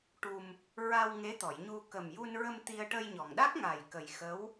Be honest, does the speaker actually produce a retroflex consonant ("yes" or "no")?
yes